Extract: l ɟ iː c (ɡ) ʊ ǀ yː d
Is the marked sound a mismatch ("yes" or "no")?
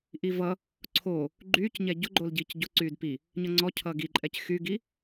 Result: yes